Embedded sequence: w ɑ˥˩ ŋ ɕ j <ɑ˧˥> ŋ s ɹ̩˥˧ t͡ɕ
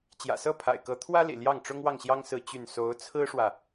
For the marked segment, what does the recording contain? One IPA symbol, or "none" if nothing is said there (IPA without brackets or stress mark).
ɑ˥